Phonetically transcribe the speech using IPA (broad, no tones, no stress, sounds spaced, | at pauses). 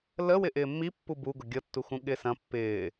l ə w ɪ ʔ ɪː mː i pː u b u ɡ ʊ ɡʲ ɤ tː u x ũ ɠ ɪː s ɐ̃ pː ɪː